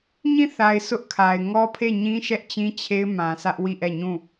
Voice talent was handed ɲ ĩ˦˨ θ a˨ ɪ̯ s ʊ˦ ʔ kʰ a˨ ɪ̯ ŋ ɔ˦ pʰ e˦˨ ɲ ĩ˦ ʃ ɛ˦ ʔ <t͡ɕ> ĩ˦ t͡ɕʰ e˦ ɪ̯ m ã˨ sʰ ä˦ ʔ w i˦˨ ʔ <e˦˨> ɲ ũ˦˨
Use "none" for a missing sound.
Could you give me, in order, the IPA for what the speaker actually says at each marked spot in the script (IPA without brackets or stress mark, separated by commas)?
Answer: t͡ɕ, ɛ˦˨